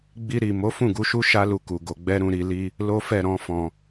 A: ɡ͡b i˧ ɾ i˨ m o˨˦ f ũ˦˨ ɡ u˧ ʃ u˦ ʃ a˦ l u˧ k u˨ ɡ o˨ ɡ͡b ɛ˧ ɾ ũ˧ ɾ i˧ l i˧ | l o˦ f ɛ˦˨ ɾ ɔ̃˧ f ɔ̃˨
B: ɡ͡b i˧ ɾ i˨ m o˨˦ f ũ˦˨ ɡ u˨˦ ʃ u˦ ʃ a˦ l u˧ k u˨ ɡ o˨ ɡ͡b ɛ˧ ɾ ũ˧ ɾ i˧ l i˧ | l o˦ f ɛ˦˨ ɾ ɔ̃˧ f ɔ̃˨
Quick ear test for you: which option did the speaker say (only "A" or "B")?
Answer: B